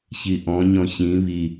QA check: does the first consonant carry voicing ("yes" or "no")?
no